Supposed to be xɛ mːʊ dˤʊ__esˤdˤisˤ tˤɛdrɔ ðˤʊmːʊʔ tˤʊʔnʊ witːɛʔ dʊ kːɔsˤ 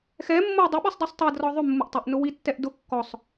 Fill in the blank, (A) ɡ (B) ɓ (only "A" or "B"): B